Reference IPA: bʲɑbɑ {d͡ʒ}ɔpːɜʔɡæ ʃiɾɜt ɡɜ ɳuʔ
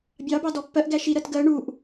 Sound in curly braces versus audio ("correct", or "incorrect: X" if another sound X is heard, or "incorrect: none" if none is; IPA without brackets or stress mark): incorrect: d